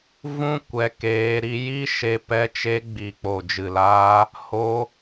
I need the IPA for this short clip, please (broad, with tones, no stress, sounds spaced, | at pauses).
v ũ˦ kʷ ɛ˧ k eː˧ ɾ i˧ j i˦ ʃ e˦ p ɛ˦ t͡ʃ e˧ ɡ͡b i˨ k͡p o˨ d͡ʒ ɨ˨ l aː˧ | h o˧